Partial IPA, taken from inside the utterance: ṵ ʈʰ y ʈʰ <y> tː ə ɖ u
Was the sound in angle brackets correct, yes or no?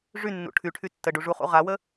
yes